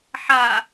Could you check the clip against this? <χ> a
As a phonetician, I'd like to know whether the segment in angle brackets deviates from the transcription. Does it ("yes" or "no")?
yes